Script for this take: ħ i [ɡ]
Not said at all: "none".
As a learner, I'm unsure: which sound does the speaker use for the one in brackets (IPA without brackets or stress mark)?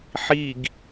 ɡ